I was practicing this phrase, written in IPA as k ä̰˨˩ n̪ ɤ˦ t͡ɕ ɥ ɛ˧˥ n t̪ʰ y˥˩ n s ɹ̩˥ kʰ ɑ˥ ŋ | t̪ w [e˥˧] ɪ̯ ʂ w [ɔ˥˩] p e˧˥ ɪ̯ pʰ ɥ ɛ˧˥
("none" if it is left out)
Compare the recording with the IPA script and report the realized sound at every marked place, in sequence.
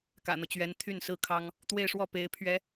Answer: e˥˧, ɔ˥˩

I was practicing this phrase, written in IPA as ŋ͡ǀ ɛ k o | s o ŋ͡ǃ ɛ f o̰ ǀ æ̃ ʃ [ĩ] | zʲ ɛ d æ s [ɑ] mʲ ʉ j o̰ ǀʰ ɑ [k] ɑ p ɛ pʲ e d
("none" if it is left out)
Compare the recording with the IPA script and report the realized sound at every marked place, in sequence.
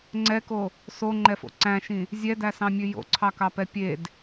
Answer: ĩ, ɑ̃, k

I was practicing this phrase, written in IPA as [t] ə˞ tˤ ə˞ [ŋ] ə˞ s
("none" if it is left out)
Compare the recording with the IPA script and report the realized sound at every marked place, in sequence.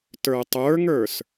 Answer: t, ŋ

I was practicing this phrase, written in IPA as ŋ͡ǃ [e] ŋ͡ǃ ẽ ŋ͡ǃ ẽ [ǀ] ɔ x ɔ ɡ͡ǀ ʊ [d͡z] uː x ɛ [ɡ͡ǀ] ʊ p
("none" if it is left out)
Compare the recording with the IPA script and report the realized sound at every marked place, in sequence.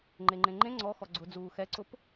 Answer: e, ŋ͡ǀ, d͡z, ǀ

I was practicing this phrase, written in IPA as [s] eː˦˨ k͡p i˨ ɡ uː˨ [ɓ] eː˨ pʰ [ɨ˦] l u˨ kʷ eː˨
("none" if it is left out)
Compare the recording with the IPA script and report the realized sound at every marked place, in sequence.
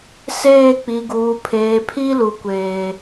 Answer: s, pʰ, i˦

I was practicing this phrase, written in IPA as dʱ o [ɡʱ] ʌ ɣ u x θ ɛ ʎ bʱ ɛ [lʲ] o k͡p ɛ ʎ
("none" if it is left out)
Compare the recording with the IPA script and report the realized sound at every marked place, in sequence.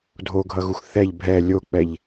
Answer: ɡʱ, lʲ

